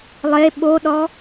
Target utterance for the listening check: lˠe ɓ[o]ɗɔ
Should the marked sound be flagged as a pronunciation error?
no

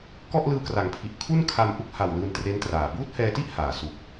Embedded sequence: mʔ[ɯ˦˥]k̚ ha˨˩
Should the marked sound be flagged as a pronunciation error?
yes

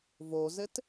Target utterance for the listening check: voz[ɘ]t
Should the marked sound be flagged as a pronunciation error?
no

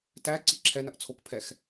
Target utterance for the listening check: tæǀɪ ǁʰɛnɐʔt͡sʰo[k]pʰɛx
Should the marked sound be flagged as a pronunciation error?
no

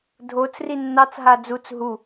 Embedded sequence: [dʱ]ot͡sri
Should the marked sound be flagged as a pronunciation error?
no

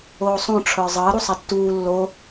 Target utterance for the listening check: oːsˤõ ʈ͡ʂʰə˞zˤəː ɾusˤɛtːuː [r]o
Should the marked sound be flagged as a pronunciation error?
yes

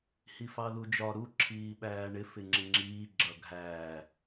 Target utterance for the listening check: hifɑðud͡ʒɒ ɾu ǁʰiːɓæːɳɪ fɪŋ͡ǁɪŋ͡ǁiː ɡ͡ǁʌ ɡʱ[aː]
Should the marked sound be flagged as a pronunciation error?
yes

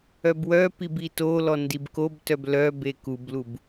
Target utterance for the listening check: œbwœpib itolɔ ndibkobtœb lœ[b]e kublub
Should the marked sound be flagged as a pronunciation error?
no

